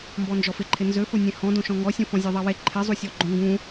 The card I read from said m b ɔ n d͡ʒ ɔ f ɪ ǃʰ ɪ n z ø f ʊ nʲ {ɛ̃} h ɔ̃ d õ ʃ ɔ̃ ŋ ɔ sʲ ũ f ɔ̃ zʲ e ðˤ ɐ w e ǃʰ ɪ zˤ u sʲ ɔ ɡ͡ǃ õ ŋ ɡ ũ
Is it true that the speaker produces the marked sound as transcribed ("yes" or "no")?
no